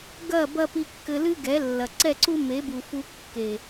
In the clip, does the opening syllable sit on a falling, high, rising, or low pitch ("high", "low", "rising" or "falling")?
falling